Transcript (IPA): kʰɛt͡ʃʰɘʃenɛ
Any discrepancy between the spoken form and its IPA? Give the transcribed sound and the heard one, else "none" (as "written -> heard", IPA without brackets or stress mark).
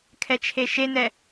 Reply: ɘ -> e